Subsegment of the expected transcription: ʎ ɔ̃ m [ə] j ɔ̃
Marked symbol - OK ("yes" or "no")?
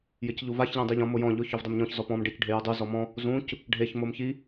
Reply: no